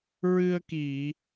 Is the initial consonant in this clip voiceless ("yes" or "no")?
no